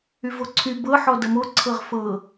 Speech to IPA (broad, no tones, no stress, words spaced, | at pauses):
yvoǀʰy bɤ ħɔdʌmo ǀʰɤʁfɤ